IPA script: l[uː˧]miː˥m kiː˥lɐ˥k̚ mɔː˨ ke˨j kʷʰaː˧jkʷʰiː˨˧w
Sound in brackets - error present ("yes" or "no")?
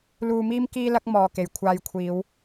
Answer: no